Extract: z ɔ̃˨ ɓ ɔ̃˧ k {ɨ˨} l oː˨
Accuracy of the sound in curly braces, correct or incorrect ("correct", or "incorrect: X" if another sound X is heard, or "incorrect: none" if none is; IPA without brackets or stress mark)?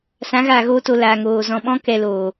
incorrect: ɛ˨